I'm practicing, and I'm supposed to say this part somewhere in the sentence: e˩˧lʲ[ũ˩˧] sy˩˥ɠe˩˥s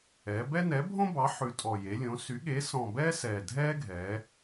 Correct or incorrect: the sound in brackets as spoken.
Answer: incorrect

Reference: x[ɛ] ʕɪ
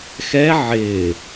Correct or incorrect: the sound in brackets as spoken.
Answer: correct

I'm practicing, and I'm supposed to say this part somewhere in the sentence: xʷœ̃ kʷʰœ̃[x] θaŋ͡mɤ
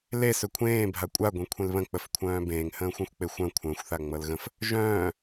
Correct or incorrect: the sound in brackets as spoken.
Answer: incorrect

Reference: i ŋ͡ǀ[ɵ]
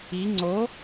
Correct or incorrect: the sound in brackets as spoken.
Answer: incorrect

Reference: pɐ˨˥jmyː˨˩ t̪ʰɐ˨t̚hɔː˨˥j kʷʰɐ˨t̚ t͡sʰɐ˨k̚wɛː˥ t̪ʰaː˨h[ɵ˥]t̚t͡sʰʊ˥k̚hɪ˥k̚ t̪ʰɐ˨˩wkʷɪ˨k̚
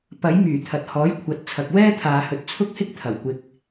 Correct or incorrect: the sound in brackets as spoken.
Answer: incorrect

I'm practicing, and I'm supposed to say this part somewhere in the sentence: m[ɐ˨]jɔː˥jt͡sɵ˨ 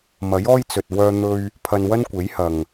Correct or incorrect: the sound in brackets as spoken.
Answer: incorrect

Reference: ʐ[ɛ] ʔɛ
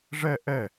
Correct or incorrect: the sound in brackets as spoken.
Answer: correct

